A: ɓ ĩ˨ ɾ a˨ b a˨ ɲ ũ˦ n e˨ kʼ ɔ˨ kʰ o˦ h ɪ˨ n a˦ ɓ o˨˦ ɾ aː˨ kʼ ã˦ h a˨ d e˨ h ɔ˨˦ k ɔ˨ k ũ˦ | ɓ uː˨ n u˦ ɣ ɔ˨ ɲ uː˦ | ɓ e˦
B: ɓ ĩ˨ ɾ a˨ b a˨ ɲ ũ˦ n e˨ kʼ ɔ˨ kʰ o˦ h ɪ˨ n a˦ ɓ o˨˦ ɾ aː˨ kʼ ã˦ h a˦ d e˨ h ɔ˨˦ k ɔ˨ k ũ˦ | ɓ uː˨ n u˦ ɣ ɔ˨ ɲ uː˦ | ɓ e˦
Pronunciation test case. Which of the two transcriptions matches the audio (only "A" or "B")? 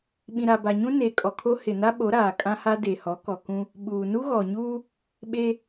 B